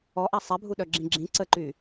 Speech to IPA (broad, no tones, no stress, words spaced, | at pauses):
ɔʔa sˤɛbʱu ɗœɡ͡ǁĩɡ͡ǁĩ ǀəǃy